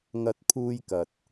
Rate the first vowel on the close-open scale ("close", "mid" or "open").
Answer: open